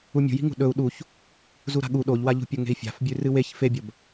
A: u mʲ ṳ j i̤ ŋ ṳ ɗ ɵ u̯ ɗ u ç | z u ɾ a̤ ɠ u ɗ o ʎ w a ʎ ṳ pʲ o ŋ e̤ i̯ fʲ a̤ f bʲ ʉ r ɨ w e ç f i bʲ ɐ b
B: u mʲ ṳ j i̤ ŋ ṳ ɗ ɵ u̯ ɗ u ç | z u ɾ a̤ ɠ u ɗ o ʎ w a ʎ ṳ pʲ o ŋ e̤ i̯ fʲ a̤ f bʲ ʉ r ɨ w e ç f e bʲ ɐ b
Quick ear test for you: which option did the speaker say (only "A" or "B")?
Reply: B